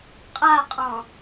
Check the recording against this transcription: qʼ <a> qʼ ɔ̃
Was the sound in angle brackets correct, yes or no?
yes